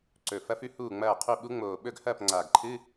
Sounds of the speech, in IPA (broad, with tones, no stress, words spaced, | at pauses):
ǀɵ˨˩fɐ˧˥fʉ˧˥ huː˥˩ŋ͡mɐː˥˩qʰu˥˩ ɓu˧˥ŋ͡moː˨˩ ɓɵ˥˩ɡhɐː˥˩pŋ͡ǀaː˨˩ɡǃʰɨ˧˥˧